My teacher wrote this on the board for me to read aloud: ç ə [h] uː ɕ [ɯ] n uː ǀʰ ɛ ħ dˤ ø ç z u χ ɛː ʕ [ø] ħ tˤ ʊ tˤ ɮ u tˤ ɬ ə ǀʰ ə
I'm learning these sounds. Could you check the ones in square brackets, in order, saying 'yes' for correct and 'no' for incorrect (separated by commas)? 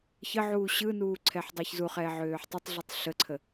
no, yes, no